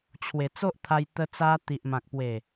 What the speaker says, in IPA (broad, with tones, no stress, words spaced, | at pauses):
t͡ɕʰwe˨˩t͡so˦ʔt̪ʰa˧j t̪ə˧t͡sa˧ t̪i˨ʔmã˨k̚pwe˨˩